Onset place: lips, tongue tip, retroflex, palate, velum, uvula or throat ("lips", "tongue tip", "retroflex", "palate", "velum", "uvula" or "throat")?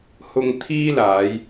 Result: throat